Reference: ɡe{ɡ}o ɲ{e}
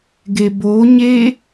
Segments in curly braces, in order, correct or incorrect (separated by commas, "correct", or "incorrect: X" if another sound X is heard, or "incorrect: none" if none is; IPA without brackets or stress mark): incorrect: b, correct